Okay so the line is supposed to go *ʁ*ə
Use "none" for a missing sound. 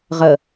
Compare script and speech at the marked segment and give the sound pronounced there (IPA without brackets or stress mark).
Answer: ʁ